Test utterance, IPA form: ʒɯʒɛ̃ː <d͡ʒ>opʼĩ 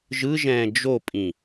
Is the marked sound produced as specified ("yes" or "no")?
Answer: yes